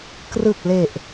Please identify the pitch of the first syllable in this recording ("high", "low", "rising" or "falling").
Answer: low